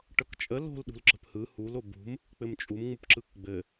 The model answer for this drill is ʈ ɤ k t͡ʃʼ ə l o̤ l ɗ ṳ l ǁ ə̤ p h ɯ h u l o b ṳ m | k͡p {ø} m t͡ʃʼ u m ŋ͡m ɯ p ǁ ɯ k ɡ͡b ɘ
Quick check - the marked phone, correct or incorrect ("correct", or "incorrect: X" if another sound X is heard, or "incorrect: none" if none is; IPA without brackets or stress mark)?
incorrect: ɘ